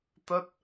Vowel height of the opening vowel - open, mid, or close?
mid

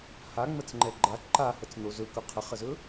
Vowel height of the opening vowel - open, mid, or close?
open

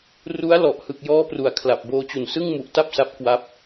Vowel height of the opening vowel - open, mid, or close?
close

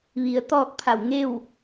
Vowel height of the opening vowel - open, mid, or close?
close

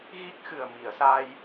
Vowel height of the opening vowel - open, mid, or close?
close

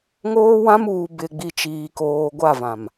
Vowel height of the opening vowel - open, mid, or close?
mid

